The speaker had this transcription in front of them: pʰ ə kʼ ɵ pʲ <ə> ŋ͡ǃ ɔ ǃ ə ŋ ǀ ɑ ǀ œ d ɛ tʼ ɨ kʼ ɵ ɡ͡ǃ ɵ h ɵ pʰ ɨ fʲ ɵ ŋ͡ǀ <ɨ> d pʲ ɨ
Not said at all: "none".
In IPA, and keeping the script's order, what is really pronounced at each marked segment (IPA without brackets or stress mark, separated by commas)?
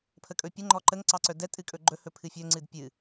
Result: ə, ɨ